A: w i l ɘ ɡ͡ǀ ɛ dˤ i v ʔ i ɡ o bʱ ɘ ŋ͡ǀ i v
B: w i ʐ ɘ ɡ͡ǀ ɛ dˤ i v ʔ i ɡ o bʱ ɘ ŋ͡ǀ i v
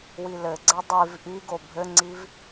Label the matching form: A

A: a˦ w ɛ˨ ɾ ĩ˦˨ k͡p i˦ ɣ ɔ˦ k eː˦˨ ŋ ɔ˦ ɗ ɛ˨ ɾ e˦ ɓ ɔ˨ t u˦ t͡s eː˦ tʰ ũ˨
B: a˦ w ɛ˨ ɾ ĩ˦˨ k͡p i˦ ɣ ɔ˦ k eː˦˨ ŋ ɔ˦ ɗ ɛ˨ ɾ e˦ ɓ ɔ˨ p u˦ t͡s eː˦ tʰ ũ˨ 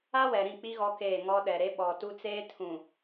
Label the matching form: A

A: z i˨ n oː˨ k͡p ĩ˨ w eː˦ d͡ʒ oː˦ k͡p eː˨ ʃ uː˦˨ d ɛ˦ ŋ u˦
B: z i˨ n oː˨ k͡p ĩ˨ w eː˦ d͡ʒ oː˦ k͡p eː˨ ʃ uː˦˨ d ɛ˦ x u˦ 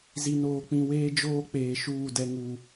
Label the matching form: A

